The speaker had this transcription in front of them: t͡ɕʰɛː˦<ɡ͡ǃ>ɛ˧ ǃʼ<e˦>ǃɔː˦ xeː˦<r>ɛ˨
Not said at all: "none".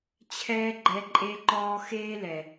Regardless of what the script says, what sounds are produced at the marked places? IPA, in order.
ɡ͡ǃ, e˦, l

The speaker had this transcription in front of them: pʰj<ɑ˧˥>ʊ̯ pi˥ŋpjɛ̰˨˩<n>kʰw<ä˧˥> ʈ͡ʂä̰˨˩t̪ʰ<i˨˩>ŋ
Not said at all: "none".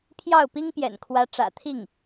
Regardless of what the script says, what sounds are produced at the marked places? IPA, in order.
ɑ˥˩, n, ä˧˥, i˥˩

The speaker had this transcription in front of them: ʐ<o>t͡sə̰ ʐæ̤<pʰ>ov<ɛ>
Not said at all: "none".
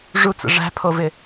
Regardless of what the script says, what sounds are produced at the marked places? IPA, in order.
u, pʰ, ɪ

